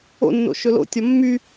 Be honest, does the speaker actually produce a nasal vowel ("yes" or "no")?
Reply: no